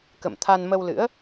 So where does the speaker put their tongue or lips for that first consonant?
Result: velum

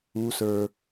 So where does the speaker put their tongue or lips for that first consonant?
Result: tongue tip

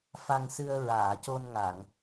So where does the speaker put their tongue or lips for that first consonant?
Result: lips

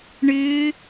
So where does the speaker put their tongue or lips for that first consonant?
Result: retroflex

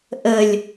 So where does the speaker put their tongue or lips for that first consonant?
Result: throat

